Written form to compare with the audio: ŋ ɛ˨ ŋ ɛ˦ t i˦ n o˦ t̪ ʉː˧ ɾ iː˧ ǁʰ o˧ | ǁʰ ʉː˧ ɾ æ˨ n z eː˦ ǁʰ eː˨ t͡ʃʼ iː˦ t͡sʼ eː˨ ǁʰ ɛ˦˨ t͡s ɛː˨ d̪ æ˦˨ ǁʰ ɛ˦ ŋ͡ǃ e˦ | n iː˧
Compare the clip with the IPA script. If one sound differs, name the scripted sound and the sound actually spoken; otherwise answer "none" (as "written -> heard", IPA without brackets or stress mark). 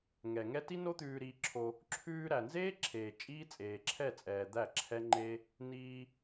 t͡s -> t͡sʼ